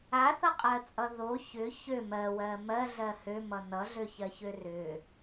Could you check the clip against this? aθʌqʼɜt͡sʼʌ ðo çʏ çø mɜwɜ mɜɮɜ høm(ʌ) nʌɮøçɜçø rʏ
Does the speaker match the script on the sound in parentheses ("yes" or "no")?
yes